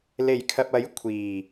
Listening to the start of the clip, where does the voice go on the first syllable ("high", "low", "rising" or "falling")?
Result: low